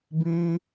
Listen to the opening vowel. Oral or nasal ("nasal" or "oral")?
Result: nasal